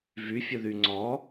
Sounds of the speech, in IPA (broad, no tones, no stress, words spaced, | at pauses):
vyfʲə ðyŋ͡ǀɔ